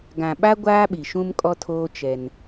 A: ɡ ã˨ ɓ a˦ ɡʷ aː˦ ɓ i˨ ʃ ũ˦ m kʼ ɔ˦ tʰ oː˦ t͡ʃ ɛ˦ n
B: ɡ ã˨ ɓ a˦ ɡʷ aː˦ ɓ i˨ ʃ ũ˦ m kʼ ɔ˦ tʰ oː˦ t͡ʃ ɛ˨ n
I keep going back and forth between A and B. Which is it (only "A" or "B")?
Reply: A